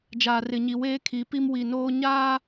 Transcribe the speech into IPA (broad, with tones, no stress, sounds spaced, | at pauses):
d͡ʒ aː˨ r ɪ˨ ɲ i˨ w eː˦ kʰ i˨˦ p i˦ m w i˨ n oː˦ ɲ aː˦